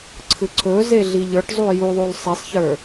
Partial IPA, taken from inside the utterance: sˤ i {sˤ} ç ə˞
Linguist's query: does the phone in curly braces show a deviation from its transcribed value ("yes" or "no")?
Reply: no